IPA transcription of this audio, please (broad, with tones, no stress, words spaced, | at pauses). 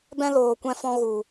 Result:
bɛ̃˦loː˨kʷɛ̃˧fɔ̃˧ ɣu˨